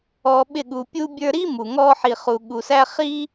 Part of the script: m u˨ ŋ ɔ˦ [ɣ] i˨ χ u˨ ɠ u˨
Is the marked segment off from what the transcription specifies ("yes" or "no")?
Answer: yes